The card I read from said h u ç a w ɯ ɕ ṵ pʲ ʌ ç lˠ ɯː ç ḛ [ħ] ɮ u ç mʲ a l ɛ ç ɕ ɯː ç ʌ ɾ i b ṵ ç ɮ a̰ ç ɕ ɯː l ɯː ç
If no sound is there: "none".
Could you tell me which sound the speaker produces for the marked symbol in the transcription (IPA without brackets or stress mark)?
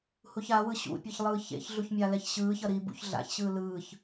ç